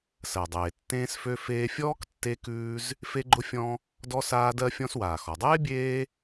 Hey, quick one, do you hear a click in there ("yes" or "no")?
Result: yes